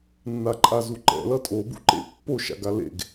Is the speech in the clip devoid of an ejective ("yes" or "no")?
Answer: no